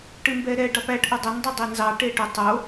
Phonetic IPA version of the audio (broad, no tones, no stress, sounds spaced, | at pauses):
ʈ ɨ m b ɛ ɾ ɛ ɖ ɑ p æ ʈ ʔ ʊ dˤ ʊ n dˤ ʊ dˤ e n z ɑ ʈ e ʈ ʊ tˤ o